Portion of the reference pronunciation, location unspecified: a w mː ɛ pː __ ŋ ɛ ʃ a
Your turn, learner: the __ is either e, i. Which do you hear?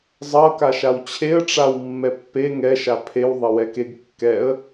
e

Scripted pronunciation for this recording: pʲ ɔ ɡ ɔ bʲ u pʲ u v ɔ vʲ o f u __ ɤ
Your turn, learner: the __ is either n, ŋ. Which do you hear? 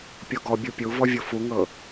ŋ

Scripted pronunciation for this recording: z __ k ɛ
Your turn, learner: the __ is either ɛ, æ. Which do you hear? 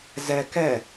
ɛ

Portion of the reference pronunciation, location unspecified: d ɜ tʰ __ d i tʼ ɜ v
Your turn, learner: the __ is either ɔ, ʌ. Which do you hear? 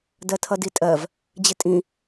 ʌ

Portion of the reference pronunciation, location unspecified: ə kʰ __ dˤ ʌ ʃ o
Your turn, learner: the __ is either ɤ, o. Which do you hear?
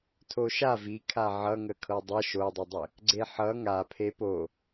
ɤ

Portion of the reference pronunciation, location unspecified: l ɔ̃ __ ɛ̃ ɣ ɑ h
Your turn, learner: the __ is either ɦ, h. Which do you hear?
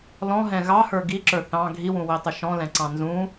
ɦ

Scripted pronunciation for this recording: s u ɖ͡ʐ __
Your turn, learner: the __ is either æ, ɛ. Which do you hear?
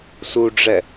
ɛ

